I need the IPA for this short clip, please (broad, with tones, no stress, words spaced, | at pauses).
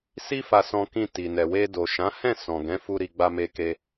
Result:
si˦fa˧sɔ̃˧ kĩ˧ti˨nɛ˨ we˧do˨ʃã˨˦hɛ̃˦˨ sɔ̃˨ɡɛ̃˨˦fu˧ ɾi˧ɡ͡ba˧ me˧ke˧